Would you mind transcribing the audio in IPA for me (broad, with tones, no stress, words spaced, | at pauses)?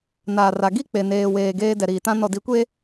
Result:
naː˨ra˨ ɡi˦k͡pe˨neː˨weː˨ ɡeː˦ dɛ˨ɾiː˨tã˦ nɔ˨di˨˦kʷe˦